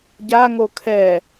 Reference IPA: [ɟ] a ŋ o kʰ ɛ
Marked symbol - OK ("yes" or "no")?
yes